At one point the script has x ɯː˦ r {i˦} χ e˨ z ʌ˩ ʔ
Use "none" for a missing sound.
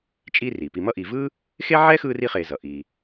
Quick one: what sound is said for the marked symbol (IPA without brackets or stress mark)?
i˦